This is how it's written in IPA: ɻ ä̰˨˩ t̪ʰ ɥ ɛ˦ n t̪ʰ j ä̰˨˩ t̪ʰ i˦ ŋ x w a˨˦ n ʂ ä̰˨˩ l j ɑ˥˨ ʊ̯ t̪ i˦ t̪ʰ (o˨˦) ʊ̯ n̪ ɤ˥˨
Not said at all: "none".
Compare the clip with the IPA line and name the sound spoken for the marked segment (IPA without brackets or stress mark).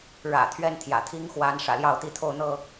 o˥˨